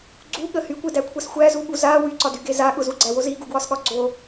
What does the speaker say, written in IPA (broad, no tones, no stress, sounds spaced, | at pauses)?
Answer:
ɡ͡ǀ u ɠ ə h y kʷ e d æ kʷʰ a s xʷ æ z u ɠ u z a w y ǀ ɒ d y ɡ e z a ɠ ʊ z u ɡ͡ǀ æ w o z i ɡ u ɡ w ɒ s ɠ ɒ ɡ͡ǀ o